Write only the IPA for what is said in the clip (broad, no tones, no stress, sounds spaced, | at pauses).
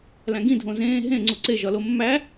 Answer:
l æ̃ ɡ ĩ dʱ õ z ẽː ɦ ẽ ŋ͡ǀ u ǀ e ʒ ɒ l o mː æ